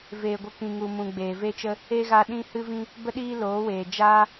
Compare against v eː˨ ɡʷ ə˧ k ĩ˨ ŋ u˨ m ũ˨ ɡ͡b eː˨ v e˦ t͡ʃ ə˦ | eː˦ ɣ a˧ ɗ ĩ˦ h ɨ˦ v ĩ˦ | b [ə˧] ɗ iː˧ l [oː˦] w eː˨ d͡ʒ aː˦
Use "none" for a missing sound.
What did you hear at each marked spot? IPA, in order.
ə˧, oː˨˦

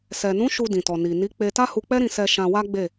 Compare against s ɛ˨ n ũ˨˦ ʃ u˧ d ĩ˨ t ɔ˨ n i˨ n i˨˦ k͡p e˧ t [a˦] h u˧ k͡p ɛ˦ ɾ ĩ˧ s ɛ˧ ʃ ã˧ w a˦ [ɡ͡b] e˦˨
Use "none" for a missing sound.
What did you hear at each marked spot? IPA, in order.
a˦, ɡ͡b

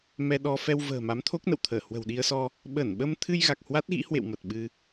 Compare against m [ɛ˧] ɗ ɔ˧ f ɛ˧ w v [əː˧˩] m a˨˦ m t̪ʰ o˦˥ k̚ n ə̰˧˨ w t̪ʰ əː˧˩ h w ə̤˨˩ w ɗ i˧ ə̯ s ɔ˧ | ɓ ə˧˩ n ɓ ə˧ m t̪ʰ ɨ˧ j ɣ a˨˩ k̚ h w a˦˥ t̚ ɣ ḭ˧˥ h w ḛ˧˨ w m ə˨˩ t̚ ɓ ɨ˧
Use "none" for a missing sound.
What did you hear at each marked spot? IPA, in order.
ɛ˧, ə̤ː˨˩

